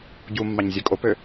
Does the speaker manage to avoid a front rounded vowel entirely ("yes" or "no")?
no